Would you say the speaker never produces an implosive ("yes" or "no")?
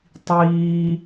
yes